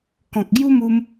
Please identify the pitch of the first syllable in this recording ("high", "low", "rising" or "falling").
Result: low